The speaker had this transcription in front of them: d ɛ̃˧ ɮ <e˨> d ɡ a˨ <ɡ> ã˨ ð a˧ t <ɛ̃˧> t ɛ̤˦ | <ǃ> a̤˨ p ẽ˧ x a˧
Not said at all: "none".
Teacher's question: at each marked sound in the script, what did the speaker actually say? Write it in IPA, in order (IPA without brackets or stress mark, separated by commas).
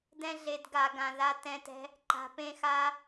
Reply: e˨, ɡ, ɛ̃˧, ǃ